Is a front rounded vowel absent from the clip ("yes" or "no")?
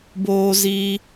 yes